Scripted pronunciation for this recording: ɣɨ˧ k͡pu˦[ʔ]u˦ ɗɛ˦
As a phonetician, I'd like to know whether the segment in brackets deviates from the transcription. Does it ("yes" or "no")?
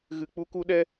yes